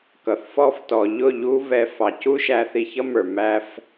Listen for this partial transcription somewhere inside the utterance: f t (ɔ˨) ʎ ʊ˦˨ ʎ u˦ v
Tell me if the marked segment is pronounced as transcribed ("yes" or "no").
yes